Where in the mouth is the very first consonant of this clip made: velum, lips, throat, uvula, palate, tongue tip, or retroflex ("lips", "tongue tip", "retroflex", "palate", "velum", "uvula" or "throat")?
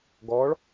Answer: velum